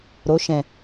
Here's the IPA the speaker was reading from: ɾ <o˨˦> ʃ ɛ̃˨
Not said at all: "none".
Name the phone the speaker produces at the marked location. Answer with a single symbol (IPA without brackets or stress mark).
o˨˦